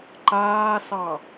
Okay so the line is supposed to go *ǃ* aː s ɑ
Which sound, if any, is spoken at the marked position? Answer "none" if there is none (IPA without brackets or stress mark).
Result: ǃ